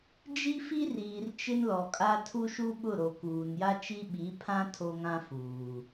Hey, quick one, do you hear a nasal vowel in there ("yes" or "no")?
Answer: yes